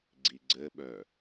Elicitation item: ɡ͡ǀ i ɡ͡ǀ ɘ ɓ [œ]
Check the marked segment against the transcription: correct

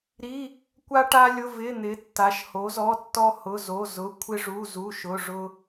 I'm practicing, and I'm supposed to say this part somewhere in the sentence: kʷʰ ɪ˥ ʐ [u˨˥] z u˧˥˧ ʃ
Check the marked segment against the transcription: incorrect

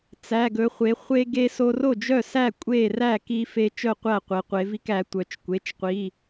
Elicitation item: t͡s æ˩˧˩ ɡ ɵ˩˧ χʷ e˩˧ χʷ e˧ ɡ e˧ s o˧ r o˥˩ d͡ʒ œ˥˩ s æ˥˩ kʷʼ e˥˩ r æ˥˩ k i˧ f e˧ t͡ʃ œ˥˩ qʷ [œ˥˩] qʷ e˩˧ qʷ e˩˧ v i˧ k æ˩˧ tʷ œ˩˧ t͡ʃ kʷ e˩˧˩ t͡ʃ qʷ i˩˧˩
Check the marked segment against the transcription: incorrect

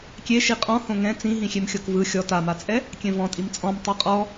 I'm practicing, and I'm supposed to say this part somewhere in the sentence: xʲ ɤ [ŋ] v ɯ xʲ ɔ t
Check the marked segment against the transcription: incorrect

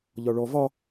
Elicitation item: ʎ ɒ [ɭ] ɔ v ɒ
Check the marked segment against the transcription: correct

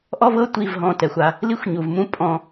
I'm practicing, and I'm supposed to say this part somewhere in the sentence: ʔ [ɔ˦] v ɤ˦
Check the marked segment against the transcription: correct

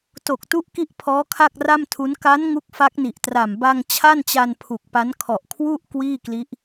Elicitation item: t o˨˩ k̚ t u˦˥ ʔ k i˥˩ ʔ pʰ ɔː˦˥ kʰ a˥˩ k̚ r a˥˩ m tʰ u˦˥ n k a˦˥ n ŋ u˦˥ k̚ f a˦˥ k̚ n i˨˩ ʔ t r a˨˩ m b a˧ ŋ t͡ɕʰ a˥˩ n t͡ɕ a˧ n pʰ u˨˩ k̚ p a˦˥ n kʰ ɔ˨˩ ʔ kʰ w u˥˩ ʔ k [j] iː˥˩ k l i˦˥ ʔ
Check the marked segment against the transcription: incorrect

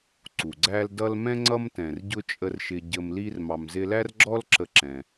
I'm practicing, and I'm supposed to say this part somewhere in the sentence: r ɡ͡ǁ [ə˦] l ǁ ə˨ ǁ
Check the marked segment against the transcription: incorrect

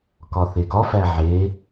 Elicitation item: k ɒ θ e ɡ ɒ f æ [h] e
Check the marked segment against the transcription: incorrect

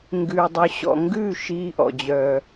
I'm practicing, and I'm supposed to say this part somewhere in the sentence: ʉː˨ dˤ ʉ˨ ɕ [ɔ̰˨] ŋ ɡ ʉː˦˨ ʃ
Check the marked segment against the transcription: correct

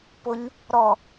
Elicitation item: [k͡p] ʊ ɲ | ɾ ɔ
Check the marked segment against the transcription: incorrect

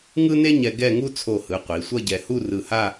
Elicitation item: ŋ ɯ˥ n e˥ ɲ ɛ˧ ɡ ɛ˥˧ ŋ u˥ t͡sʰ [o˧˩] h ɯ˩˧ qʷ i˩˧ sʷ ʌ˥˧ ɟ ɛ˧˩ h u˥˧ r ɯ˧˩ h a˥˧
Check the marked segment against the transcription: correct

